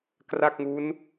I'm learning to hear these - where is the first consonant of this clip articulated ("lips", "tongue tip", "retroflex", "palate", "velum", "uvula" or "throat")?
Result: velum